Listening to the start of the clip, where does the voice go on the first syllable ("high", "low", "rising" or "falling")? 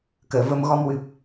low